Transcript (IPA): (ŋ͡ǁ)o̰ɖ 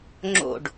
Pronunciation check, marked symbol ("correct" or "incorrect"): correct